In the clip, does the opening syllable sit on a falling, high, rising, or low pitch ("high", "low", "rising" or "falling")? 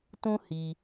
high